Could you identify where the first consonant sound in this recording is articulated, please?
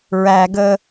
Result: alveolar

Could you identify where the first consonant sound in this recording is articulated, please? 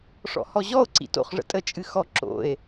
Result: retroflex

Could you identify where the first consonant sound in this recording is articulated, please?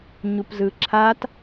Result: palatal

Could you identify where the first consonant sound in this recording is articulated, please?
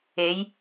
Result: palatal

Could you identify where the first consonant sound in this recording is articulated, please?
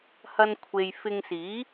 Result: glottal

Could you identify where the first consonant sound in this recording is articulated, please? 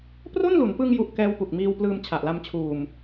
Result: labial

